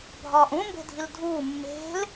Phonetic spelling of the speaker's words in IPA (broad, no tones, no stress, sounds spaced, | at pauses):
bʱ ɒː ʔ ũ m b e̤ dʱ i l dʱ uː mː e̤ l